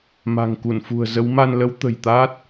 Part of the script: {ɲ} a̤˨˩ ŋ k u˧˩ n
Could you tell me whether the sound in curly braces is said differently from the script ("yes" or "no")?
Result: yes